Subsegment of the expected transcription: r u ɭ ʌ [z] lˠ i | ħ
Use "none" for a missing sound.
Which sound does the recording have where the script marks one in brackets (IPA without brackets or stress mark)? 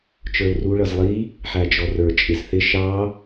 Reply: z